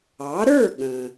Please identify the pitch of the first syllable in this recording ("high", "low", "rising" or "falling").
rising